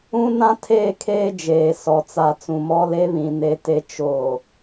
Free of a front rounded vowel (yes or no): yes